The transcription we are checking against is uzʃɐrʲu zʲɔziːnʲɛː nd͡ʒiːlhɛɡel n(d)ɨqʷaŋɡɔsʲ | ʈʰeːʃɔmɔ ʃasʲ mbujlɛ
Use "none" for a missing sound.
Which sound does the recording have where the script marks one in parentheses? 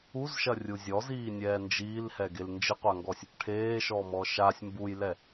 d͡ʒ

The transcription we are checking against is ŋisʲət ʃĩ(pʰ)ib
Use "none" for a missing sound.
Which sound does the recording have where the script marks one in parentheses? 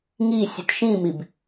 m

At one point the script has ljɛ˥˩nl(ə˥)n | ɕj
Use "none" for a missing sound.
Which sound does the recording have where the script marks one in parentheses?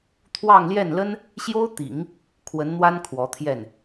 ə˥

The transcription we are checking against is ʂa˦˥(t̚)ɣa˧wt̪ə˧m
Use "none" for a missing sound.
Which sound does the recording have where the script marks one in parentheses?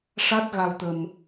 t̚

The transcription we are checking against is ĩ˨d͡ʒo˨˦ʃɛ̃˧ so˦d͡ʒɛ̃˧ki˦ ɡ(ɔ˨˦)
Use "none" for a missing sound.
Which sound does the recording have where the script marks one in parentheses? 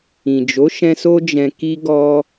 ɔ˦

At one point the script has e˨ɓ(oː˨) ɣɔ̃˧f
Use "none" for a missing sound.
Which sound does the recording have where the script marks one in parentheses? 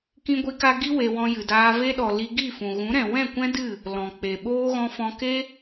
oː˦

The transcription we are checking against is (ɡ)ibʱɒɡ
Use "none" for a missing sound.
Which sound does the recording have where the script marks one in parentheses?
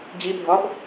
d͡ʑ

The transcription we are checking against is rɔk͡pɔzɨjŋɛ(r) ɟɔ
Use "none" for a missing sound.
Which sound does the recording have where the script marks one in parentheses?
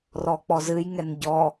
n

